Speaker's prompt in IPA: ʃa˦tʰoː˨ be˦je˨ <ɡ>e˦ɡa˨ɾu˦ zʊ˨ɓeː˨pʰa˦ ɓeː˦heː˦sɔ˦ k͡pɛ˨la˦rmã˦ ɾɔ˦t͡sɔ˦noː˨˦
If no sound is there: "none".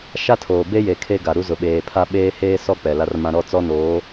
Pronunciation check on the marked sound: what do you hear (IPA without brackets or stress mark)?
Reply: kʰ